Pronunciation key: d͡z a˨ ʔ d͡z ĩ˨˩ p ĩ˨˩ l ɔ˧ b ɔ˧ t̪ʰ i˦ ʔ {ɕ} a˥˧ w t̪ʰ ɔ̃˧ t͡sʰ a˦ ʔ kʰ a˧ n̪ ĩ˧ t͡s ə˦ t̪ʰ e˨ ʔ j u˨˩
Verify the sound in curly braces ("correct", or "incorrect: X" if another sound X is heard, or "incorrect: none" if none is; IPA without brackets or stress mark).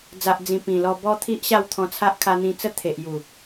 correct